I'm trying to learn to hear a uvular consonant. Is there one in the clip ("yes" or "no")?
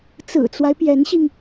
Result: no